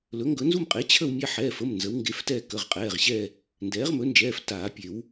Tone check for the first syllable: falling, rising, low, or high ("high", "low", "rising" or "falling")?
rising